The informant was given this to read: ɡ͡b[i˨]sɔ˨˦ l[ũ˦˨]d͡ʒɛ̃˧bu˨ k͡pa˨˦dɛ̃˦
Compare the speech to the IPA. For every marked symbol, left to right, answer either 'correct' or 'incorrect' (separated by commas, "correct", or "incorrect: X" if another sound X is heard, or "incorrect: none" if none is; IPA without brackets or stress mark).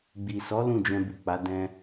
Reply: correct, correct